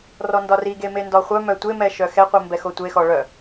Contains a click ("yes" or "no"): no